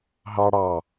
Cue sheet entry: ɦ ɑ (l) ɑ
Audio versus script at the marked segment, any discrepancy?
yes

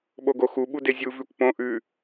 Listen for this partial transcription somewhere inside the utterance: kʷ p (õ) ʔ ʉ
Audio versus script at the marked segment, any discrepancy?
no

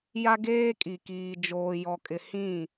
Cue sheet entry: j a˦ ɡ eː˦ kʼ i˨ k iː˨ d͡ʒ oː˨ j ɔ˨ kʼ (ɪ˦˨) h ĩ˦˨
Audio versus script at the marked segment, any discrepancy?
yes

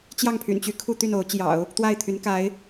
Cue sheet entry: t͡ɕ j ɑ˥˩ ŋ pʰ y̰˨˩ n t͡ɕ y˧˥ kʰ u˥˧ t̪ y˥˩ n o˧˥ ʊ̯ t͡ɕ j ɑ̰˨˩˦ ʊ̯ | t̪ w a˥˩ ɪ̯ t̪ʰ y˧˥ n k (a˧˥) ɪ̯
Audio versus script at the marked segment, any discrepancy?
no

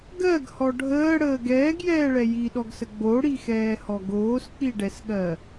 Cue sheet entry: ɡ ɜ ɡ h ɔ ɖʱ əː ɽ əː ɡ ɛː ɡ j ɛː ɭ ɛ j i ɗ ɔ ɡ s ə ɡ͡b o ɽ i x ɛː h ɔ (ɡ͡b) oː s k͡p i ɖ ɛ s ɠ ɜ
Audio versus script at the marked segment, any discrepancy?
yes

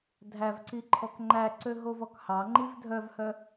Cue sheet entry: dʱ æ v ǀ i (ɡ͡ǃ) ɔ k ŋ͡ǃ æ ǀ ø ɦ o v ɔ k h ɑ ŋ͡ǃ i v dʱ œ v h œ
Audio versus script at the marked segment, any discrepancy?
yes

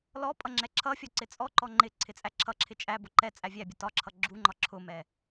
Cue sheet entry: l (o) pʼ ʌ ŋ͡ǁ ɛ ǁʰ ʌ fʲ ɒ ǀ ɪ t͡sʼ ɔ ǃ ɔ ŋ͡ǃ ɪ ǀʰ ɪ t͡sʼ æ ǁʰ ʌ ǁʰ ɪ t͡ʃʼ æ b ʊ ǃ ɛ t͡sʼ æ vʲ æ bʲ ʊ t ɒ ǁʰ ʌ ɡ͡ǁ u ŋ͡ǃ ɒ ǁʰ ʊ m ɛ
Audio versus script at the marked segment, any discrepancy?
yes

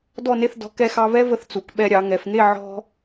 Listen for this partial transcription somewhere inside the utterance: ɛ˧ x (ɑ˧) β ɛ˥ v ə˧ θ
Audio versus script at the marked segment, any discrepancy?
no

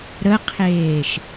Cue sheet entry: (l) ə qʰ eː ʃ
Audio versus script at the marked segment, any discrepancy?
yes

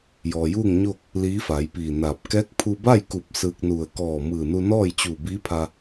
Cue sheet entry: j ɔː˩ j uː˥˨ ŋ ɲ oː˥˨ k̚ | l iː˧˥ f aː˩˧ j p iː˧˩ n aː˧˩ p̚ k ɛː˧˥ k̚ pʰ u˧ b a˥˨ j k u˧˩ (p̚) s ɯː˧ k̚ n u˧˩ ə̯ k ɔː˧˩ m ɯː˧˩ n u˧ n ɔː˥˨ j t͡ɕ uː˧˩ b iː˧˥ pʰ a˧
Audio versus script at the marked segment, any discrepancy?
no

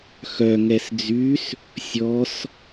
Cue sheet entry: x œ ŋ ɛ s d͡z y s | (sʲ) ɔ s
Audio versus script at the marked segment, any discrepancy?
no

